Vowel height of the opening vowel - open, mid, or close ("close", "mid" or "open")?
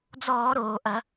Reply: mid